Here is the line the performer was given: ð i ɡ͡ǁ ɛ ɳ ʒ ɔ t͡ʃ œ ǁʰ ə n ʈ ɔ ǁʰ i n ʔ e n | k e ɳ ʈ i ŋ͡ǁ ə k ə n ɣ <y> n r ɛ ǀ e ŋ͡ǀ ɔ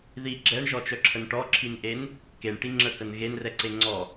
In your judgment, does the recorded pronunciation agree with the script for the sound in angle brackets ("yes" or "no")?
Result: no